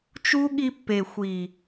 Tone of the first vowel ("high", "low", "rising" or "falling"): high